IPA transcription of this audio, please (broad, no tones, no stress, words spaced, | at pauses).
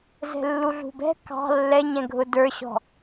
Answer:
zɛ̤lːuɮṳbɛ̤ kɑ̤ lːɛɲɛ̃ɡʱʊ də˞ɕɔ̤